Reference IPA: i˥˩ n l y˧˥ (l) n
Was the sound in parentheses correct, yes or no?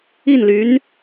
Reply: no